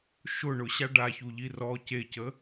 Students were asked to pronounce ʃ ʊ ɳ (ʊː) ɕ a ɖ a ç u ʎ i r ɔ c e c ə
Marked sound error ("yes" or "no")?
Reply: yes